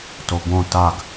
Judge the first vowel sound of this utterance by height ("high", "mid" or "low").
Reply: mid